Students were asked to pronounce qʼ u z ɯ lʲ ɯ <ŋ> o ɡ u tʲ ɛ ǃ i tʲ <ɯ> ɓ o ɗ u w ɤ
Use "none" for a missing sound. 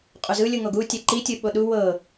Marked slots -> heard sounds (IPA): ŋ, ɯ

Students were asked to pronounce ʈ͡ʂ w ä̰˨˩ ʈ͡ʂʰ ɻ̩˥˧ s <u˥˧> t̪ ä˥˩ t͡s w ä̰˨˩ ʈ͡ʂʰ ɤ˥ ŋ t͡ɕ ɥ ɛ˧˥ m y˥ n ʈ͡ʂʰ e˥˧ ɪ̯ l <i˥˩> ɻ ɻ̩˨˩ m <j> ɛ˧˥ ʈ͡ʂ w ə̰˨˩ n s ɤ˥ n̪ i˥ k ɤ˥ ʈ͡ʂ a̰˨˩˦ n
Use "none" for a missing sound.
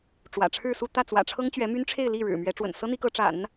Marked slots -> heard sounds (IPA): u˥˧, i˥˩, ɥ

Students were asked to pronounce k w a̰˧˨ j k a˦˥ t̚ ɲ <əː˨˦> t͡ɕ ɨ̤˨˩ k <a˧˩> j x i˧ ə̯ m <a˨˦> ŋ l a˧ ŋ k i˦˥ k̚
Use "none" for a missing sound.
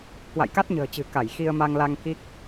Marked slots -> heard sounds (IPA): ə̤ː˨˩, a˧˩, a˧

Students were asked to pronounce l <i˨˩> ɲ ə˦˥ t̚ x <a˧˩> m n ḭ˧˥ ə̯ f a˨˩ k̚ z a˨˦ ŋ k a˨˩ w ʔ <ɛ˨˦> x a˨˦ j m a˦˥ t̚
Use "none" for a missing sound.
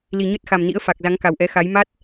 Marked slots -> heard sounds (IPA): i˨˩, a˨˩, ɛ˨˦

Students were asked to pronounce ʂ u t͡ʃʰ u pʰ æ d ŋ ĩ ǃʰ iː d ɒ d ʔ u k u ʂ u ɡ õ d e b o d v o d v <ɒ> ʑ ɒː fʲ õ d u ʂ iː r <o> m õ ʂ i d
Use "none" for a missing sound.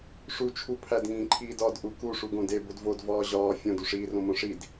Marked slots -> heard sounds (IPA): ɒː, õ

